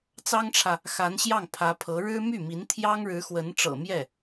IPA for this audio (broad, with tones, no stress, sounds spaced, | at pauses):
t͡s ɑ˥ ŋ ʈ͡ʂʰ ä˨ | x a˧˥ n ɕ j ɑ˥˩ ŋ pʰ ä˧˥ pʰ ɤ˧˥ ɻ ɻ̩˥ m y˥˩ m i˧˥ n t̪ʰ j ɑ˥ ŋ ɻ ɻ̩˧˥ x w ə˧˥ n ʈ͡ʂ ɤ̰˨˩ m j ɛ˥˩